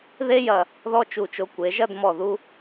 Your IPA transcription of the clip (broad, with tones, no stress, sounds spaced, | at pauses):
ð e˥ j ɐ˧˩ | ð ɔ˥ t͡ʃ u˧˩ t͡ʃ o˧ kʷ e˩˧ ʒ ɐ˥˧ d m ɔ˧˩ ð u˥